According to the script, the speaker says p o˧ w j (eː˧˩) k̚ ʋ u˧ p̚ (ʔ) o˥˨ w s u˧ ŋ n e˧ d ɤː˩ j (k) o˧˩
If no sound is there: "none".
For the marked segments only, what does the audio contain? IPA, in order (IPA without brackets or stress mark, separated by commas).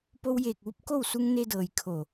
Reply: eː˧˩, k, kʰ